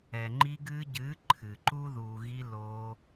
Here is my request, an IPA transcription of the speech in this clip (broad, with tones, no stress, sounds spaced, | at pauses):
ɛ˨ ŋ͡ǃ i˧ ɡ ɨː˧ ɟ ɨː˨˦ ǃʰ ɨ˨ ǃ u˦ ð uː˨ ɣ i˧ l oː˧